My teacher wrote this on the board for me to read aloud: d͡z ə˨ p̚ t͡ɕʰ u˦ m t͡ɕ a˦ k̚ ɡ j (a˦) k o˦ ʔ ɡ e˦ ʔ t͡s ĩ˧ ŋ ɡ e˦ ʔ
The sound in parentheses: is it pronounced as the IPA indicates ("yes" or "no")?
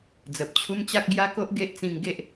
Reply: yes